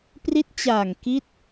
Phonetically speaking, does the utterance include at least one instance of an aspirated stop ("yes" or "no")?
no